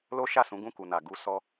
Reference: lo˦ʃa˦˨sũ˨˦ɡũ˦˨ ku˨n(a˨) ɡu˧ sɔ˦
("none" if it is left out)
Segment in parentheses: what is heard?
a˨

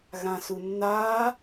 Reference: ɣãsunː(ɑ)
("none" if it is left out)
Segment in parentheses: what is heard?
a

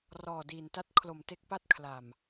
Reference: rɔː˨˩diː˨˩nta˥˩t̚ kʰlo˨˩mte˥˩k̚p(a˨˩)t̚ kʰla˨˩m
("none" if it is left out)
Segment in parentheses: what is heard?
a˥˩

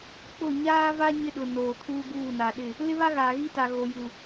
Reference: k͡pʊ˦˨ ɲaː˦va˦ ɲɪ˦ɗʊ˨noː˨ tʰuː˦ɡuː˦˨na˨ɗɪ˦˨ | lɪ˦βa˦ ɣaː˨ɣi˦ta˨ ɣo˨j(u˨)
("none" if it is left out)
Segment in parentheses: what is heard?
u˨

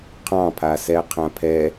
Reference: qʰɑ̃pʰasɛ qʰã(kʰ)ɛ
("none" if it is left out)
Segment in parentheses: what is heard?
pʰ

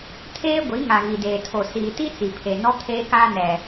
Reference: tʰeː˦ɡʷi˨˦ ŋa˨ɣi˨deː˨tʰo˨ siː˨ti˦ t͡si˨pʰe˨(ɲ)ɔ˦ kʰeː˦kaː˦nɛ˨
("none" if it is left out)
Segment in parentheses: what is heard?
n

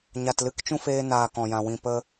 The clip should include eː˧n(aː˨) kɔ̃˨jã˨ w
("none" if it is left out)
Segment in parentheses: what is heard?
aː˨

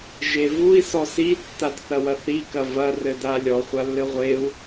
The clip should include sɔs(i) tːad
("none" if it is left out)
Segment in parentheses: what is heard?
i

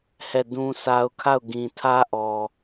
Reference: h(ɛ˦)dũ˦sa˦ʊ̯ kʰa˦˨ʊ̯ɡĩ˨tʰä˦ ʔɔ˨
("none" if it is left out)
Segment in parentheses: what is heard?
ɛ˦˨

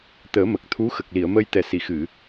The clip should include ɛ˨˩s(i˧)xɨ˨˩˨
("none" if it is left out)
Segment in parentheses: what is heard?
i˨˩˨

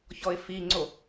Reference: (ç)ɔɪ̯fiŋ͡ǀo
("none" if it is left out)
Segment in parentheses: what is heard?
ç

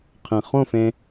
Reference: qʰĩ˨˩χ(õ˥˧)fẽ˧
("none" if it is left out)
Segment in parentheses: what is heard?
õ˥˧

